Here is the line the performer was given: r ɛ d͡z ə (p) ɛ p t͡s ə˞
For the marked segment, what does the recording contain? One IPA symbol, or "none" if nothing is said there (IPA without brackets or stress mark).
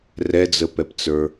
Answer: p